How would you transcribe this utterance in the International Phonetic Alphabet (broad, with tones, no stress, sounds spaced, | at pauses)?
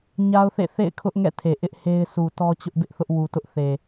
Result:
ɲ a˦ ʊ̯ θ ḛ˦˨ θ ḛ˦˨ ɪ̯ kʰ ʊ˦ ʔ ŋ ɛ̰˦˨ tʰ e˨ ʔ ɪ˦ ʔ h e˦ ɪ̯ s u˨ t ɔ˦ t͡ɕ ʊ˦ ʔ b ɪ˦ ʔ θ ʊ˦ ʔ w u˨ t ʊ˦ ʔ θ e˨